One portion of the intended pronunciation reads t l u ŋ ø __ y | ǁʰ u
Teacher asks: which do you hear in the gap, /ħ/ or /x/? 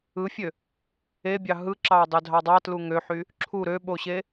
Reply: ħ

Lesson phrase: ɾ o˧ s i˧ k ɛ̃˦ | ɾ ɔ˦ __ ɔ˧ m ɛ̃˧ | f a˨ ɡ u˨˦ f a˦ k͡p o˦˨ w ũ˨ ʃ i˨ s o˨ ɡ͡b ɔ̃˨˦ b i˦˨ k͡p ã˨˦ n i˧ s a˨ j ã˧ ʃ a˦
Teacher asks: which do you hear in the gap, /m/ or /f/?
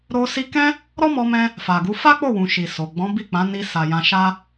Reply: m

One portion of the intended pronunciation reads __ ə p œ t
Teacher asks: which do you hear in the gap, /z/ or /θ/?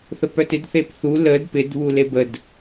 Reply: θ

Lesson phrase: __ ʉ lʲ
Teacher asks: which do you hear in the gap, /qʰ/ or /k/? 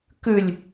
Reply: k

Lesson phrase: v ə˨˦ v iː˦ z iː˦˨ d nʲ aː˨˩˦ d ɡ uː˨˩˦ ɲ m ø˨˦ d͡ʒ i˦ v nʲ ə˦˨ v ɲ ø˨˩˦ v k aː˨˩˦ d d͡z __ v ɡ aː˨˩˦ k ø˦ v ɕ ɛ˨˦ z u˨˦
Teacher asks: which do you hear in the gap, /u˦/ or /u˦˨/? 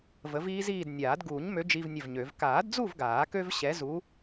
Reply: u˦˨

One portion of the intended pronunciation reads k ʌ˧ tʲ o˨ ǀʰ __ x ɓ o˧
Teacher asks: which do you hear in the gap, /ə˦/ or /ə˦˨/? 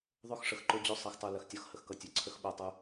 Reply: ə˦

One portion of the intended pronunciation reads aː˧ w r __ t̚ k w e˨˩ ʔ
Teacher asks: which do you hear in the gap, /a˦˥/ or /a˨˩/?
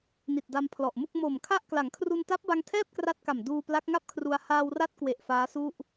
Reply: a˦˥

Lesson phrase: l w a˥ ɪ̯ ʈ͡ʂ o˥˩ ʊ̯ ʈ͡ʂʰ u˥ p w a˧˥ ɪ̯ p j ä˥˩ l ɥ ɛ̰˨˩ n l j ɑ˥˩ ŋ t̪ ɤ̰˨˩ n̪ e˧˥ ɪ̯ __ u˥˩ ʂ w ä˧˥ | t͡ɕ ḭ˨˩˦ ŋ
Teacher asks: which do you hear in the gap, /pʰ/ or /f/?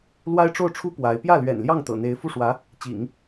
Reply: f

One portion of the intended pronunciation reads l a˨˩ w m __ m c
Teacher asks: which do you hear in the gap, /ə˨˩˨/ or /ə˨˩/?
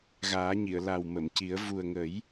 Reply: ə˨˩˨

